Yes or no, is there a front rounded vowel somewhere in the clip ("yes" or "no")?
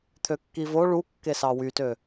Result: yes